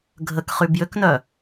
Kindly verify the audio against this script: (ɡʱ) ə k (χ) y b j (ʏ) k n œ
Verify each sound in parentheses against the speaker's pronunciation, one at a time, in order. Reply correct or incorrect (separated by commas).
correct, correct, correct